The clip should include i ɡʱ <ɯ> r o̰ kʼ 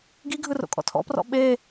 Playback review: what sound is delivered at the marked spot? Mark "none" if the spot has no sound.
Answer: ɯ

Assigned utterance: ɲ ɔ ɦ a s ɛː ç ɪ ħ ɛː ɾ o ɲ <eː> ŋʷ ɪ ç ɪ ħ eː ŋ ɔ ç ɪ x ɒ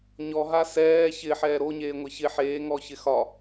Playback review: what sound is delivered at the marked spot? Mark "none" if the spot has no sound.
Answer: eː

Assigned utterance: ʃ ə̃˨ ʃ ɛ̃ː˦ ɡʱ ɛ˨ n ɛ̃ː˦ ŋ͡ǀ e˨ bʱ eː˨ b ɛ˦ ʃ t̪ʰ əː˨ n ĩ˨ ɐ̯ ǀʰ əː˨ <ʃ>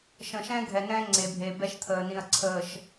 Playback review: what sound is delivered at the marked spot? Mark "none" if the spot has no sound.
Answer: ʃ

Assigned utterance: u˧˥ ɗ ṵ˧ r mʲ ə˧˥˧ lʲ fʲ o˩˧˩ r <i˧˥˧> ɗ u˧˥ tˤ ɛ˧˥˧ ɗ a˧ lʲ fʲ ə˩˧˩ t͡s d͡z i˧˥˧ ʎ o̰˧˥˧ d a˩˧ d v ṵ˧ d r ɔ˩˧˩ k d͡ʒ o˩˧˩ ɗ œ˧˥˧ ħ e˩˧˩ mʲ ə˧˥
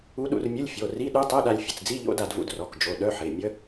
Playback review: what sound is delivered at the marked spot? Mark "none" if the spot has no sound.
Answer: i˧˥˧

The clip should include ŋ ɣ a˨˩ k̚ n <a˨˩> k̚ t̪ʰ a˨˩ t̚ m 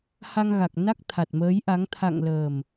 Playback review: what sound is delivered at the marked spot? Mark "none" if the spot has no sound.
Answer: a˦˥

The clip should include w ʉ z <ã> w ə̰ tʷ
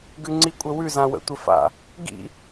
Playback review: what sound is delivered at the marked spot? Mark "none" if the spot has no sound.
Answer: ã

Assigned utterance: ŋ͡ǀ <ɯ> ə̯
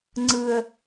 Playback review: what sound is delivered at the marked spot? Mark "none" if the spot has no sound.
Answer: ɯ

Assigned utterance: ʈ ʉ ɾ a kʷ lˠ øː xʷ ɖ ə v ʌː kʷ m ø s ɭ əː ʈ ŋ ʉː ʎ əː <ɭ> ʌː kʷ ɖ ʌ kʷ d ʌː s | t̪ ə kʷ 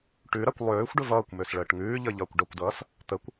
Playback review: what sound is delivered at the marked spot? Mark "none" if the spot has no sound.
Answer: ʎ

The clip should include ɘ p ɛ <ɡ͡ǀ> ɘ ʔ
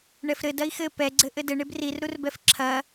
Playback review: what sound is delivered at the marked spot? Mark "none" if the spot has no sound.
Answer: ɡ͡ǀ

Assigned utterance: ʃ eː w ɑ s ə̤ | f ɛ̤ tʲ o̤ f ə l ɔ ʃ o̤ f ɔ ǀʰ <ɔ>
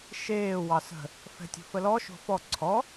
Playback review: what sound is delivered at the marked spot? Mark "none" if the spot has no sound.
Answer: ɔ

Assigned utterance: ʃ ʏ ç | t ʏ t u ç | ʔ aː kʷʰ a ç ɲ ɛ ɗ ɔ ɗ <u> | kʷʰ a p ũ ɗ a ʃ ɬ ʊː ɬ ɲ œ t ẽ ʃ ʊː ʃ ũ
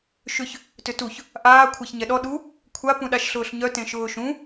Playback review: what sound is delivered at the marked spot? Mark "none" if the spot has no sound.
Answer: u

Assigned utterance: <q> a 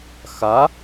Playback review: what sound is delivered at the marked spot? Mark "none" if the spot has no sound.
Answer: x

